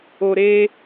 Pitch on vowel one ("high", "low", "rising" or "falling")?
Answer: low